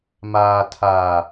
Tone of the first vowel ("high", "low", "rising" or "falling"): low